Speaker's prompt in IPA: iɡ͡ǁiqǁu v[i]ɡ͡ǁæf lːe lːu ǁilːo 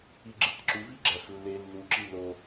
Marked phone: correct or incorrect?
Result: correct